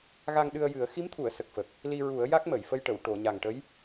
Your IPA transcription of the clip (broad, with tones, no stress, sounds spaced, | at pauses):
ɣ a˧ ŋ ɗ ɨ˧ ə̯ j ɨ˨˩˦ ə̯ x i˧˥ m t̪ʰ u˨˩˨ ə̯ s ə˨˩ k̚ f ə˨˩ k̚ | l i˧ ɹ u˨˩˦ ə̯ j a˦˥ k̚ m ə˨˩˨ j f ə˧ j ʈ ə˨˩˨ w ʈ o˨˩˨ ɲ a˨˩ ŋ ʈ ə˧˥ j